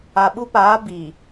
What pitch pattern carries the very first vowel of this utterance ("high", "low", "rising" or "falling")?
low